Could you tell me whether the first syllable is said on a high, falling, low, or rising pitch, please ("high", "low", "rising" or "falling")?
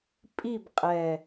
falling